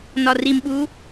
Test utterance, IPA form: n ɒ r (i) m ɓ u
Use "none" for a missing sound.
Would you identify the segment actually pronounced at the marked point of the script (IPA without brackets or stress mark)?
i